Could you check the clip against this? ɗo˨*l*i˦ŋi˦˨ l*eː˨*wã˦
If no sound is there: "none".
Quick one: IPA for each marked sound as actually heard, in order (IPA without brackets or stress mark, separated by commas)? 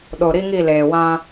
ɾ, eː˨